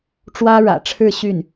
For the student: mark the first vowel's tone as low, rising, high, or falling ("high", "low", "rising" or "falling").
high